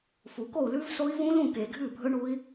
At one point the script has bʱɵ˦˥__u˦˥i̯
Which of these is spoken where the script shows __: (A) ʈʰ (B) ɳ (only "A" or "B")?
B